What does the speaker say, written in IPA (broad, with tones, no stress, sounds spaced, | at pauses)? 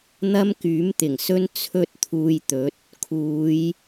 n̪ ɐ˥ m k yː˨˥ m t̪ ɪ˨˩ ŋ s ɵ˥ n t͡sʰ ɵ˥ t̚ t̪ʰ uː˧ j t̪ ɵ˨˥ t̚ | kʰ uː˨˧ j